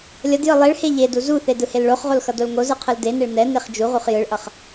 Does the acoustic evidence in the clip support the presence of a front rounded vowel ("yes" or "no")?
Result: no